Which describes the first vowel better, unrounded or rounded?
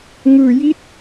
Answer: unrounded